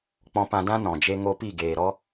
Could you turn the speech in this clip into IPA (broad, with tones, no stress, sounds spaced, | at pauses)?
k͡p ɔ̃˧ p ã˧ d ã˦ n ɔ̃˨ d͡ʒ e˧ ŋ o˧ p i˦˨ ɡ eː˨ ɾ ɔ˦